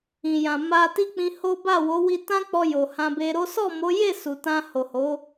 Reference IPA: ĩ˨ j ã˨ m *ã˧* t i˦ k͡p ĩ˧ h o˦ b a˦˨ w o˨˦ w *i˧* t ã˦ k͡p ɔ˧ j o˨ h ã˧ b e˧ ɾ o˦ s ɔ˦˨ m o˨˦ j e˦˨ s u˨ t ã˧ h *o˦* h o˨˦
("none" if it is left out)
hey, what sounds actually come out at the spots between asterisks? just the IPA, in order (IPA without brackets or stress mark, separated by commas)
a˧, i˧, o˨